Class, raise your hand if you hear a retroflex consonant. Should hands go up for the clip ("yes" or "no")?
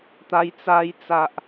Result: no